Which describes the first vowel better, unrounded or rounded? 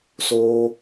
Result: rounded